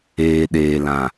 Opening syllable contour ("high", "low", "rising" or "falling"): low